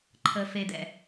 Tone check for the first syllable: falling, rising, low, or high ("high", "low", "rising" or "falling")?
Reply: high